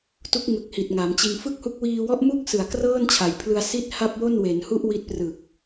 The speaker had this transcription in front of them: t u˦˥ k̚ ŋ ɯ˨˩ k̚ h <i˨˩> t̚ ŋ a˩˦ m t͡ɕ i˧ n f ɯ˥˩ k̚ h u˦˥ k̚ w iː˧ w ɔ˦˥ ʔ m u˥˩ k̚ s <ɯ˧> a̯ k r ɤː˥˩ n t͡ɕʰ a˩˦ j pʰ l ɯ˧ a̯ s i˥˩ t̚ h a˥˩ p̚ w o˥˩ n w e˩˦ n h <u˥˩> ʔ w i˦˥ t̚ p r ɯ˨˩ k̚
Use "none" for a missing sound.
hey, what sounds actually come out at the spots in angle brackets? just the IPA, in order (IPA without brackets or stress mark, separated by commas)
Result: i˨˩, ɯ˨˩, u˥˩